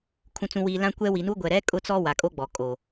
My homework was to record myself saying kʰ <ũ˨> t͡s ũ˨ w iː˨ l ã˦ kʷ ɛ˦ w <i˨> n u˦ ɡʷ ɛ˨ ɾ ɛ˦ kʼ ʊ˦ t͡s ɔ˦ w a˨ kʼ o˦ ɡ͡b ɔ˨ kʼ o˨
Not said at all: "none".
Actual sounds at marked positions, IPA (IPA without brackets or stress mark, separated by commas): ũ˨, i˨